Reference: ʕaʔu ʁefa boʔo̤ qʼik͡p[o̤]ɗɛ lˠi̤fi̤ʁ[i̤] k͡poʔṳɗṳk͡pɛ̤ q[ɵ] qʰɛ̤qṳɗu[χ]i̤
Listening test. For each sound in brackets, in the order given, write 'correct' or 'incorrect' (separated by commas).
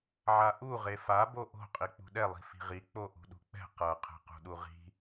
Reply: incorrect, incorrect, incorrect, incorrect